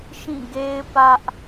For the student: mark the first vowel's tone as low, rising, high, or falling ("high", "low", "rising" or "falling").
falling